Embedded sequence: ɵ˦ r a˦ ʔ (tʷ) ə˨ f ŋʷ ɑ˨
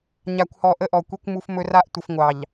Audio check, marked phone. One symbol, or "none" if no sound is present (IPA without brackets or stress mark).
tʷ